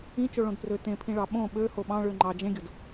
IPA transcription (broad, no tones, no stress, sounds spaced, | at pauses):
ĩ t͡ʃ o ɭ õ d p r ø t ẽ pʰ ĩ ɭ ɑ ɓ õ ɓ ø h o ɓ ɑ̃ ɭ ø ŋ͡ǃ ɑ d͡ʒ ẽ ɡʲ o d